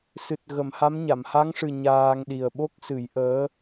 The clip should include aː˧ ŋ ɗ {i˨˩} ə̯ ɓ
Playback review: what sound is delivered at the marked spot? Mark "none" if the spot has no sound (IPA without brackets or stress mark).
i˨˩